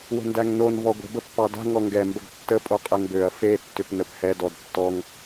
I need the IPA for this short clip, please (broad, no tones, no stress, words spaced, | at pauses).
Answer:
wə̤ndæŋnon vɔɡʷə̤ bəpːɑda̤ ŋɔŋɡɛ mbəɡtːə pʼoqʼɛŋbøɐ̯ fe tːʏpnəphɛ dɔdtːɔŋ